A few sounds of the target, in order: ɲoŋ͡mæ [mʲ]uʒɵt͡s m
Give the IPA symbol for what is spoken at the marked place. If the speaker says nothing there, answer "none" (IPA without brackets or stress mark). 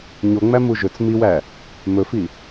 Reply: m